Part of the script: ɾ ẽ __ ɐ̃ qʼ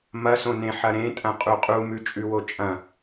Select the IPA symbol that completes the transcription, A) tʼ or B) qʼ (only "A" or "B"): A